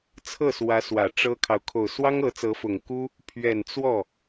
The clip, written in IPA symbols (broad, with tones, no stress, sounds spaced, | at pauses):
t͡sʰ ɤ˥˩ s w ä˧˥ s w ä˨˩ ʈ͡ʂ ɤ˥ kʰ ɑ˨ ʊ̯ kʰ o˨˩ ʊ̯ s w ɑ˥ ŋ ɤ˧˥ t͡s ɤ˧˥ f ʊ˨˩ ŋ k u˥ | pʰ ɥ ɛ˨˩ n t͡s w ɔ˥˩